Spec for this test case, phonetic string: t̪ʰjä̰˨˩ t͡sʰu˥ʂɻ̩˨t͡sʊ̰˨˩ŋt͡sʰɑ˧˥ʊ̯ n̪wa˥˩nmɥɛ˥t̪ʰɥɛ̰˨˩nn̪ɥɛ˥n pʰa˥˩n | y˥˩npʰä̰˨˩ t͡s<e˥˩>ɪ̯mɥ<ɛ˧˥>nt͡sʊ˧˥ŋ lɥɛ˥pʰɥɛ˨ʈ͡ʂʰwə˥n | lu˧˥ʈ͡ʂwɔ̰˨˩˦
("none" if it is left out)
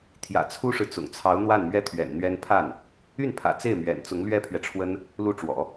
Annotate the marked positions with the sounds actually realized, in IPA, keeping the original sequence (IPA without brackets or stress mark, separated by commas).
e˥˩, ɛ̰˨˩